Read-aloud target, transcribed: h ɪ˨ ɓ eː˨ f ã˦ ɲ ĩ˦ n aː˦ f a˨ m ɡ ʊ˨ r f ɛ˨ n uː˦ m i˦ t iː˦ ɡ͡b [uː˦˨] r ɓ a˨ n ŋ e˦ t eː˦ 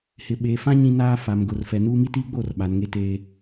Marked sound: incorrect: oː˦˨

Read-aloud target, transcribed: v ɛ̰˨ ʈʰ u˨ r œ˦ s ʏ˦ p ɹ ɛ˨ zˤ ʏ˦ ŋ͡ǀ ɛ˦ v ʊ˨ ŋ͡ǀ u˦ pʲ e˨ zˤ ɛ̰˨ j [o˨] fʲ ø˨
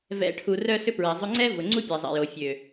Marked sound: correct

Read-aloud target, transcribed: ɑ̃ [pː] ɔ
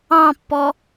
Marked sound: correct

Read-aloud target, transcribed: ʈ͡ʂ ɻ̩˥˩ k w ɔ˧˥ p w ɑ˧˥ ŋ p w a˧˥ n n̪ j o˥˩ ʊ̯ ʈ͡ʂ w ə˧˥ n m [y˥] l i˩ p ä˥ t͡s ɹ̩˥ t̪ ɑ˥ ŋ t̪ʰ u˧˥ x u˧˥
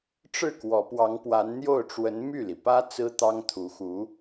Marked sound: incorrect: y˥˩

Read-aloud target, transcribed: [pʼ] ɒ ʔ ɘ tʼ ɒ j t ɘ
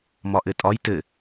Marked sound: incorrect: m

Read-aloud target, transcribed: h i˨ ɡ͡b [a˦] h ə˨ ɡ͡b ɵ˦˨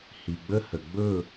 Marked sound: incorrect: ə˦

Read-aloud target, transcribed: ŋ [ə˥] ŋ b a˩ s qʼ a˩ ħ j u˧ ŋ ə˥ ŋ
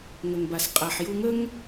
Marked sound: incorrect: ə˩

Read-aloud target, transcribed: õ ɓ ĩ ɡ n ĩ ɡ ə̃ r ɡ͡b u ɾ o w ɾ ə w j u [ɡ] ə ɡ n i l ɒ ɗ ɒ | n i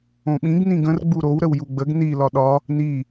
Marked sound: incorrect: ɡ͡b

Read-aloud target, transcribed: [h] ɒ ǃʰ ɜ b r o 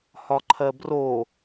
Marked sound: correct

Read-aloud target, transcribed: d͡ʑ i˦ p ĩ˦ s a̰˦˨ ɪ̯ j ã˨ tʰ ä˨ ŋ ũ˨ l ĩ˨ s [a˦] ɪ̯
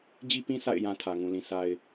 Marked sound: incorrect: a˨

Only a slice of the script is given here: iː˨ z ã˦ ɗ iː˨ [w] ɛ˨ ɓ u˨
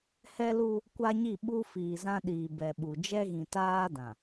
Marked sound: incorrect: b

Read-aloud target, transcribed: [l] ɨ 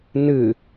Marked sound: incorrect: n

